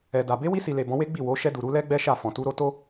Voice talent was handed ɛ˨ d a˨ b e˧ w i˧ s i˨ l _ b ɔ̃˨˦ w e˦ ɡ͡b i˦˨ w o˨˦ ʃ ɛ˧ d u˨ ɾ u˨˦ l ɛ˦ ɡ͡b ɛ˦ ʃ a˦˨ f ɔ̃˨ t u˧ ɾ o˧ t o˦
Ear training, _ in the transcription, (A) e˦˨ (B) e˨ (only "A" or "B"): B